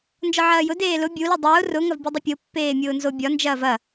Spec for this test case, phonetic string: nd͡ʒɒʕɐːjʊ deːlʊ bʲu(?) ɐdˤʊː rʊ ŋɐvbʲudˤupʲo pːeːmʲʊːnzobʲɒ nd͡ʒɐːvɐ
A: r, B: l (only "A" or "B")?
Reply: B